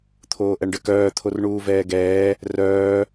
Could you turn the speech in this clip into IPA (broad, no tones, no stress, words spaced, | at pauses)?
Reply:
t̪ʰoːʔɛɳɖəkœː t̪ʰorɳuːvɛːɡɛː | rœː